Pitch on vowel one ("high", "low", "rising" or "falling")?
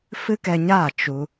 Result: high